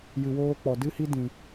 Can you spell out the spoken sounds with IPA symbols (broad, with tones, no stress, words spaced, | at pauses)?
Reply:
jɨ˨woː˧k͡pɔ˨ dɨ˦hi˦ dĩ˨